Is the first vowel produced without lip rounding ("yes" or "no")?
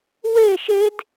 yes